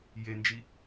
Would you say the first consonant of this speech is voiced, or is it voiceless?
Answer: voiced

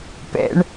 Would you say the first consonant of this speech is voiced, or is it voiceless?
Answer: voiceless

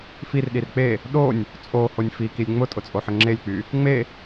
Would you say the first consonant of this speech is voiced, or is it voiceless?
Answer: voiceless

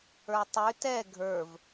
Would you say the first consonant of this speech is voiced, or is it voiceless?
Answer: voiceless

